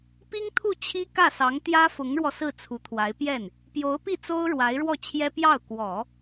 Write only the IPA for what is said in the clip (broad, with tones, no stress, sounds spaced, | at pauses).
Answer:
p i˥ ŋ t̪ʰ u˥˩ t͡ɕʰ i˥ k ä˥˩ s ɑ˧˥ ŋ t̪ j ä˥ f ʊ˧˥ ŋ ɻ w ɔ˧ s ɹ̩˥˩ t͡sʰ u˧˥ t̪ʰ w a˧˥ ɪ̯ p j ɛ˥˩ n | p j o˧˥ ʊ̯ p i˥˩ t͡s o˥ ʊ̯ ɻ w a˧˥ ɪ̯ ɻ w ɔ˥˩ t͡ɕʰ j ɛ˥ p j ɑ˥˩ ʊ̯ k w ɔ˨˩˦